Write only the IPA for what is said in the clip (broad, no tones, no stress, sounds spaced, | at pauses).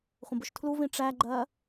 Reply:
χʷ ə̃ b ʊ ʃ tʰ l u v ĩ ʈ͡ʂ æ ɡ͡ǃ ɜ